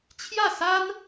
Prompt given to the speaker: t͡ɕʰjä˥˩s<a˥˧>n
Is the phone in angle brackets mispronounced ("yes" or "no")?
yes